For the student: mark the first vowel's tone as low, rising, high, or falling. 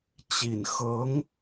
low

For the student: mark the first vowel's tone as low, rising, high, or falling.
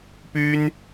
high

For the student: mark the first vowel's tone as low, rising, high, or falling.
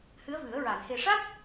rising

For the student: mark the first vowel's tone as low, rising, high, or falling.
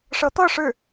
rising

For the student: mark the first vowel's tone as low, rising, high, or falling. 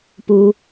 high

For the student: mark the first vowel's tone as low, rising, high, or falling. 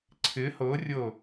rising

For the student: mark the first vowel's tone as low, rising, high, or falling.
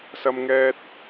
high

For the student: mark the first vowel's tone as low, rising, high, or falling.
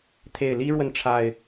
low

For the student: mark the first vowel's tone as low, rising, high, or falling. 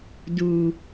low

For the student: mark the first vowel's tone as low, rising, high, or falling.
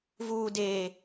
low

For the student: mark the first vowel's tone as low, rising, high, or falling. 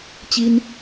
high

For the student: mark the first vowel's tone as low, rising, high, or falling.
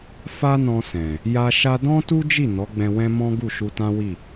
high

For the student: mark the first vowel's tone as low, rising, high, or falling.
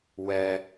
low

